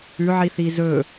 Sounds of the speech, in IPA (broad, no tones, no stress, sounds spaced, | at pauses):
ʉ ʕ i θ i z ɵ